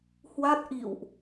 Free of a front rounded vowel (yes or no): yes